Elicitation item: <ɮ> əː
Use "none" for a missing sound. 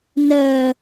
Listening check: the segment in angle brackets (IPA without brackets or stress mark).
n